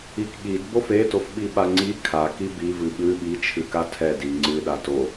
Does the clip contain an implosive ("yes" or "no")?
yes